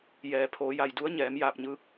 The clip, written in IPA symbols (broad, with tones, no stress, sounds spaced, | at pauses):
j ɛː˩ pʰ oː˩˧ j a˧˩ j d u˧˥ ə̯ ɲ ɛː˩˧ m j aː˧˩ p̚ ɲ ɯː˧ k̚